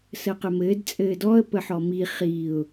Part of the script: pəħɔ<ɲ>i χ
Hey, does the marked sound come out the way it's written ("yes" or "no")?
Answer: no